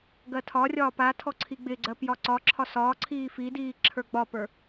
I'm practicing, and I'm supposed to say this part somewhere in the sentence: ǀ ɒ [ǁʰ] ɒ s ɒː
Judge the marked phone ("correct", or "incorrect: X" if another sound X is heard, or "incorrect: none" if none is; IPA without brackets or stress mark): correct